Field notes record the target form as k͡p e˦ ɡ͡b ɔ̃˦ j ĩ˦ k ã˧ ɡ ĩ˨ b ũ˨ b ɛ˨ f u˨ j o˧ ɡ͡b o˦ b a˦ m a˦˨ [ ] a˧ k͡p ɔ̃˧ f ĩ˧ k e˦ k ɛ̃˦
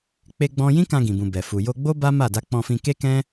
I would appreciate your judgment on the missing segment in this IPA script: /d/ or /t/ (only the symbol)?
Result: d